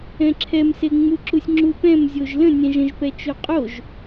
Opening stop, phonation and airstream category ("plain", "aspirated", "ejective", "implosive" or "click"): click